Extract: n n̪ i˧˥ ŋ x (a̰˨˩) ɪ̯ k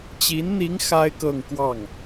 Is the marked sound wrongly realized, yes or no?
yes